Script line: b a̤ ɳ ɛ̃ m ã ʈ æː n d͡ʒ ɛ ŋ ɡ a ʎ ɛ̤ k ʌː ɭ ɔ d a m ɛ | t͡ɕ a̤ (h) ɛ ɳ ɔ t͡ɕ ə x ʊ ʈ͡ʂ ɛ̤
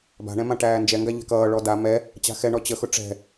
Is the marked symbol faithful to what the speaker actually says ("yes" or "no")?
no